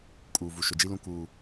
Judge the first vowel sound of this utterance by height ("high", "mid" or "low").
high